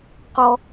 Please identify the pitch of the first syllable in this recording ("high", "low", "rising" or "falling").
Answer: low